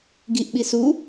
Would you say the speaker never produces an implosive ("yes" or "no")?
no